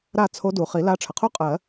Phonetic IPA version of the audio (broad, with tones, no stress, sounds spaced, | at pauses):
ɾ a˥˨ t͡sʰ o˧˥ d u˩ χ i˨˩˦ l a˧˥ ʈ͡ʂʰ ə˩ qʰ u˥ qʼ ɜ˨˩˦